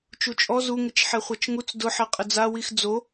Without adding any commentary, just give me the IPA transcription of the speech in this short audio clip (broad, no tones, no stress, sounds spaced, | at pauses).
t͡ʃ u t͡ʃʼ ɔ z u ŋ ɪ t͡ʃ ħ ɛ χʷ a t͡ʃ ŋ u t͡s d ʊ ħ ɛ qʼ ɪ d͡z a w i x d͡z o